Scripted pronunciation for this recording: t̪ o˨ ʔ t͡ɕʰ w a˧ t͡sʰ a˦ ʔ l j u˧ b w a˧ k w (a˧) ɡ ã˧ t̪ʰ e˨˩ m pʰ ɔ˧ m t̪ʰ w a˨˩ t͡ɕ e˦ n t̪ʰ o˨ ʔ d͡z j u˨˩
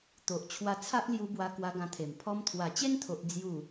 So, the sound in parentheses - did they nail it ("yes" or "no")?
yes